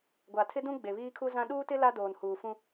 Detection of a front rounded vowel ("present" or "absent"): absent